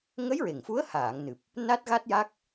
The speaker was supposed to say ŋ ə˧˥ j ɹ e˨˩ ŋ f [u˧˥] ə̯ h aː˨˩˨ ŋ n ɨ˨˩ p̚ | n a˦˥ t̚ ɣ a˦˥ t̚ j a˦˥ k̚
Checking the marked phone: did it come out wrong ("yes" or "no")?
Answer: no